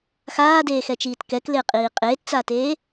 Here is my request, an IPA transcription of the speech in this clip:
x aː d eː x ɛ t͡ʃ iː t k ɛ k l ɪː qʼ iː qʼ eː t t͡s aː t eː

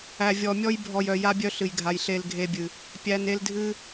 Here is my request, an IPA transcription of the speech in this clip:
æ˨ vʲ ɔ˨ mʲ ɔ˧ j bʱ ɔ˨ j œ˨ j a˦ bʲ œ˦ ɬ ɨ˨ j ɡʱ a˨ j ɬ e˧ l ɡʱ e˧ bʲ ɨ˨ | pʲ æ˨ n e˧ l dʱ ɨ˦

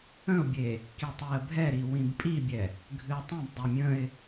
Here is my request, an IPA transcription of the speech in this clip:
ə̃ ʊ̯ bʲ e | k i tˤ i ə̯ bʱ ɛ ɾ i w ĩ b pʼ i bʲ ɛ | ɡʱ ɨ ə̯ tˤ ĩ b dˤ e mʲ ə̃ ɪ̯

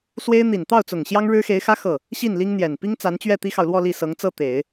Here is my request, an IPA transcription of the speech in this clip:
s w e˥ ɪ̯ n̪ i˨˩ n t̪ ɑ˥˩ ʊ̯ t͡s ʊ˨˩ ŋ ɕ j ɑ˥ ŋ ɻ ɻ̩˥ x e˧˥ ɪ̯ x ä˥ x ɤ˥˩ | ɕ i˥˩ n l i˥ ŋ n̪ j ɛ˨˩ n p i˥ ŋ t͡s a˧˥ n t͡ɕ ɥ ɛ˥˩ t̪ i˥ x ɑ˨ ʊ̯ l w ɔ˥˧ l i˥˩ s ɤ˧˥ ŋ t͡s ɤ˥˩ t̪ e˨˩˦ ɪ̯

